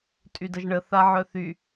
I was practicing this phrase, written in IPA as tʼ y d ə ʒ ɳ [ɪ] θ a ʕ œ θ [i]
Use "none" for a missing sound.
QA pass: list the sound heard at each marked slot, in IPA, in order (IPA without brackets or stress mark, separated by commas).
ə, y